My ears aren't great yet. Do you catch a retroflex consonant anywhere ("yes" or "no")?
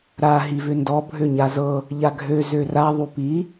no